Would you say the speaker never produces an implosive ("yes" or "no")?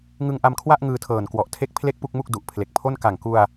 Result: yes